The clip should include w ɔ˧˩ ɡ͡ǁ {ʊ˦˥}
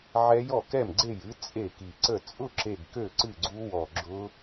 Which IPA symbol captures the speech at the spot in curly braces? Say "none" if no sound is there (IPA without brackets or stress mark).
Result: ʊ˦˥